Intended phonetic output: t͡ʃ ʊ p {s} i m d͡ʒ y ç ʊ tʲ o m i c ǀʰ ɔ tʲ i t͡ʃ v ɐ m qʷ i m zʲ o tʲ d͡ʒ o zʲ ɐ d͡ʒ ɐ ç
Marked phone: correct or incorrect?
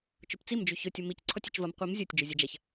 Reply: incorrect